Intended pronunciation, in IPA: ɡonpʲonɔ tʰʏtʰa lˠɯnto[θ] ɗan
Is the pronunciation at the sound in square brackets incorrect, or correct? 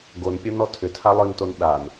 incorrect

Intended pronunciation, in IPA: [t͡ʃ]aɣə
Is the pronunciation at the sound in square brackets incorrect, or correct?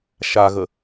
incorrect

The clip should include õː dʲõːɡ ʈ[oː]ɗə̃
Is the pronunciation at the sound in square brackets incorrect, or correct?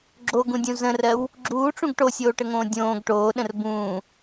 correct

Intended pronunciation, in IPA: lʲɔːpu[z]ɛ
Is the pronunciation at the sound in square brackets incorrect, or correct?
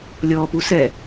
incorrect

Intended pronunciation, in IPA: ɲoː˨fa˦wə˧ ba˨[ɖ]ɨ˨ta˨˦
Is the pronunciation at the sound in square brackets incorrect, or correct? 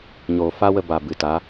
incorrect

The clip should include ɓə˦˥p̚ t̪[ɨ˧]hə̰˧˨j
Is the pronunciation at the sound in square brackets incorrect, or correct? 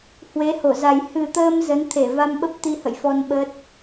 incorrect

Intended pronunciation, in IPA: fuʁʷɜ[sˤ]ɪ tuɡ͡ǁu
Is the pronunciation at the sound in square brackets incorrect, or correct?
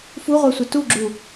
incorrect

